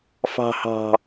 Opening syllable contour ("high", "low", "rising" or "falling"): low